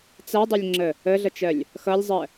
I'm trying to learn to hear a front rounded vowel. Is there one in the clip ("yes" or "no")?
yes